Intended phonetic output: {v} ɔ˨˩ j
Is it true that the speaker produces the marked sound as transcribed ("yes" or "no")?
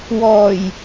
no